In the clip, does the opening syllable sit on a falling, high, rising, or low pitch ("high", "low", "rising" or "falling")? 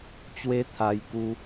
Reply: high